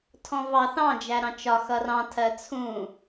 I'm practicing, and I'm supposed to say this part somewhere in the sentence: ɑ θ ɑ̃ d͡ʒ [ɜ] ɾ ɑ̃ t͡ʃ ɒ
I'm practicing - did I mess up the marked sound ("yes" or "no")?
yes